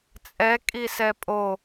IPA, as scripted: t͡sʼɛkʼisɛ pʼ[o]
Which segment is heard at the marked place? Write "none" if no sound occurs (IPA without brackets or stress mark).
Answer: o